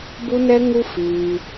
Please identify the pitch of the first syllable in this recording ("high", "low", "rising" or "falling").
high